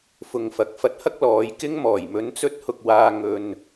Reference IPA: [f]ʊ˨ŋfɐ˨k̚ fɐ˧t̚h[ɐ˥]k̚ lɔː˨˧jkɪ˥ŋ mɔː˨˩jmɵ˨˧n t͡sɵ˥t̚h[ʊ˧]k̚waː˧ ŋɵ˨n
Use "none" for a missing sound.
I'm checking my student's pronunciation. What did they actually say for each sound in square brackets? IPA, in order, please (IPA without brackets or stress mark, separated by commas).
f, ɐ˥, ʊ˧